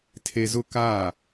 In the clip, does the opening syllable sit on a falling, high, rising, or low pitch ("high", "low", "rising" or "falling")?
low